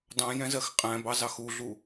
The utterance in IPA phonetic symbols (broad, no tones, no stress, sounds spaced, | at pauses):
d ɑ̃ j ɛ̃ z ɜ x qʼ æ̃ b ɑ z ɑ x u ɮ u